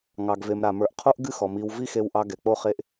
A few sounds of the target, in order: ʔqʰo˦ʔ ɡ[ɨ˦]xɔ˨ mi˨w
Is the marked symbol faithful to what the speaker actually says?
yes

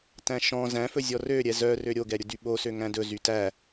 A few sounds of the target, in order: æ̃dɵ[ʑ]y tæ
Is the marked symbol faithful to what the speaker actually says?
no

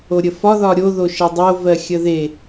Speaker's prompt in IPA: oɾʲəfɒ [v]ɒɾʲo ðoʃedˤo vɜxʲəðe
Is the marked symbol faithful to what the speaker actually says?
no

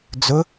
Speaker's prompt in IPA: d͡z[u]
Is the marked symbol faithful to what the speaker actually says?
no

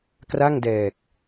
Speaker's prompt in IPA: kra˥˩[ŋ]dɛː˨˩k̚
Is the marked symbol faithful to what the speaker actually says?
yes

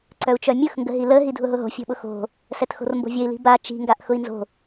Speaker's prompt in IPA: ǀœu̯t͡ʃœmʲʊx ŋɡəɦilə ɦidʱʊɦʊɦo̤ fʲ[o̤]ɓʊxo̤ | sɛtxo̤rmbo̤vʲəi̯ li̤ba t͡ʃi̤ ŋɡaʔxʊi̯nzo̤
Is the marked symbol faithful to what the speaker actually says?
yes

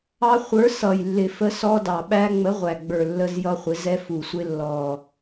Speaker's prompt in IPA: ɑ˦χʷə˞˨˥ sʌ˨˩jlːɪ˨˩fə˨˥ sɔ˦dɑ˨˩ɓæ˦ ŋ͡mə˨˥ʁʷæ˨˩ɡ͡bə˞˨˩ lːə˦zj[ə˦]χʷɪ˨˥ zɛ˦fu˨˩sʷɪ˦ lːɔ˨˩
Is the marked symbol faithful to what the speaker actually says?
no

